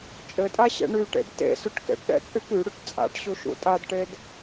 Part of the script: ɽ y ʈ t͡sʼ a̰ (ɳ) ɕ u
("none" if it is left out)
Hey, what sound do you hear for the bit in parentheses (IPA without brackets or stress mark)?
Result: ʈ